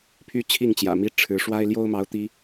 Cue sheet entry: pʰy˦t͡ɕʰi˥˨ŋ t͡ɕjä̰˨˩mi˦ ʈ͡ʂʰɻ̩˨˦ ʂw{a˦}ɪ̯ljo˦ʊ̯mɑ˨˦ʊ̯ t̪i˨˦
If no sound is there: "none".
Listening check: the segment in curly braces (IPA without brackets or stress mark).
a˦